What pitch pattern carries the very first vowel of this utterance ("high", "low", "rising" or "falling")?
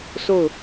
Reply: falling